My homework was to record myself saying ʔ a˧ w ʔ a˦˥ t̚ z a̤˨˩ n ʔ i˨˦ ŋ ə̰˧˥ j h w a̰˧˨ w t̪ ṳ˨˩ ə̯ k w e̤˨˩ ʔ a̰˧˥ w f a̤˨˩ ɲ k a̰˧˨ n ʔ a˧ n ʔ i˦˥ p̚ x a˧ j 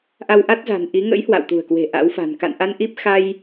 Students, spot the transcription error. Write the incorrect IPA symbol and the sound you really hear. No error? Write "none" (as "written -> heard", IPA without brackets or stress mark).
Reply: ɲ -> n